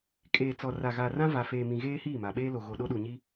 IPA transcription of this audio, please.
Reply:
kʼ eː˨ t͡s ɔ˨ r a˨ ɣ aː˨ r ã˦ v a˨ f eː˨ m ĩ˨ ɣ eː˦ h iː˦˨ m a˨ ɓ eː˦ l o˨ ɣ o˨ ɗ o˦ ɗ u˨ ɲ i˦

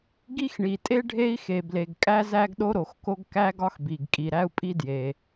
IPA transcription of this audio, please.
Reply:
ɡ i˥ x ɳ i˩ tʼ e˥ ɖʱ e˥ i̯ x e˩ b l e˩ ɡ kʼ æ˥ z æ˥ ɡ ɗ o˥ ɾ o˩ x k o˥ ɡ k æ˥ ɡ ɒ˥ x b i˩ ɡ kʼ i˩ ɾ æ˥ u̯ pʼ i˥ d j e˩

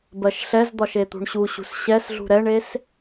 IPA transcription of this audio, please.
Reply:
b ɜ ʃ ɬ ɛ z d̪ ɒ ʃ e t̪ ṳ ɳ ɕ u ɕ ṳ s ɕ ɛ s ɮ ṳ ɾ ɛ ɳ e s

